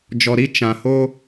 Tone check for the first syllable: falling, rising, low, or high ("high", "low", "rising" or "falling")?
low